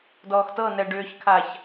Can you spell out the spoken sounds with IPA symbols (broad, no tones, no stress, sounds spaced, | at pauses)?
d ɔː x t ɤ n ɛ ɖ ʏː ç kʰ a ç